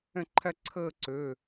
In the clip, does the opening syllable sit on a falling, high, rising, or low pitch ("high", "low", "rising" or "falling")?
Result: falling